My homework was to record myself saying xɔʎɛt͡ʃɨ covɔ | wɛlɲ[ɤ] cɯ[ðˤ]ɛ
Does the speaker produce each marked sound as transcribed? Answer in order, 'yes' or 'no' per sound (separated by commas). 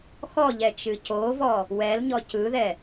no, no